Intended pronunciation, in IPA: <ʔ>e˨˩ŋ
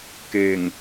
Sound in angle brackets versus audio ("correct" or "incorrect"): incorrect